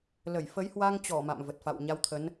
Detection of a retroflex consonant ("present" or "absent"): absent